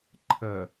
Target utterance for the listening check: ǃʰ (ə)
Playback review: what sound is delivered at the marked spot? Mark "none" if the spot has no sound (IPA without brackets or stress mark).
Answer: ə